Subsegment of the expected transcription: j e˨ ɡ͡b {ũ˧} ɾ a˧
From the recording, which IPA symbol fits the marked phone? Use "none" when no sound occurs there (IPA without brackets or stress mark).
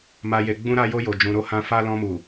ũ˧